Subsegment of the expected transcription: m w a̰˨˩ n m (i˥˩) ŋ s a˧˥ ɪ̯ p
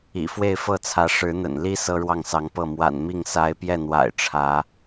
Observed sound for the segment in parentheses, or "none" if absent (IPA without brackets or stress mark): i˥˩